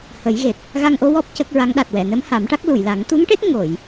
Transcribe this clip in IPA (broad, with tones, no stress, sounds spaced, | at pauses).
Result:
h ə˨˩˦ j ɣ e˨˩ t̚ | ɣ a˧ ŋ ʔ o˧˥ w ɔ˦˥ p̚ c ə˦˥ k̚ ɹ a˧˥ ŋ ɗ a˨˩ t̚ w ɛ˨˩˨ n ə˧˥ m h a˨˩˦ m ʈ a˦˥ k̚ l u˨˩˨ j l a˨˩˦ ŋ t̪ u˧˥ ŋ ʈ e˦˥ t̚ ŋ o˨˩˨ j